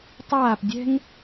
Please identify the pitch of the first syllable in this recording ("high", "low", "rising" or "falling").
falling